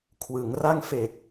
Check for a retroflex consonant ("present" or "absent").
absent